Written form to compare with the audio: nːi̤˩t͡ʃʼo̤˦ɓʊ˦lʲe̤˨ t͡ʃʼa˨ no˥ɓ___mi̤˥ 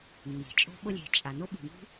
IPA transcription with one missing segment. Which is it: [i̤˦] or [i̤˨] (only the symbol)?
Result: i̤˨